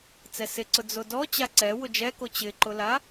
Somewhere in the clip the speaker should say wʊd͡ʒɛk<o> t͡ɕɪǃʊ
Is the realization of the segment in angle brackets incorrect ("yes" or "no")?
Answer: no